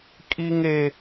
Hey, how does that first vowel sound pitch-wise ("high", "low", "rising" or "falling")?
high